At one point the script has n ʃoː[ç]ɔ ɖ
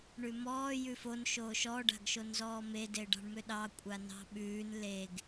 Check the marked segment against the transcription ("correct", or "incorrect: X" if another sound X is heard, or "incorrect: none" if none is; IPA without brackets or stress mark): incorrect: ʃ